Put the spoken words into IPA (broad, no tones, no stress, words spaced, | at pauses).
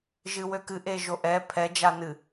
ʒɨwøkɨ ʔeʒoʔɛ pʰɛ d͡ʒanɨ